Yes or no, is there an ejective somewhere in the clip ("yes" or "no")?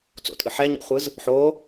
yes